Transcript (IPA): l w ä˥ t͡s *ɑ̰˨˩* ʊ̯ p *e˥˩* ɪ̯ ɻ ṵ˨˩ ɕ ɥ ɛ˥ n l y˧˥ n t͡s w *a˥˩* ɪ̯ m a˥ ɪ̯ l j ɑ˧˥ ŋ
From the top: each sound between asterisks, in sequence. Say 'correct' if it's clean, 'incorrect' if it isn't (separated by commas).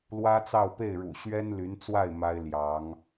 incorrect, correct, correct